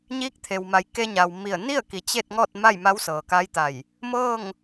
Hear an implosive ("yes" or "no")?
no